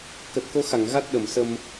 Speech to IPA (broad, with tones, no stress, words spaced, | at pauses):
kə˨˩t̚ko˨˦xa˧˩ŋ ɣa˦˥t̚ɗə˧˩msə˧m